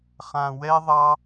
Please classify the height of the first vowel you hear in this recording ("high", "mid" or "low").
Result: low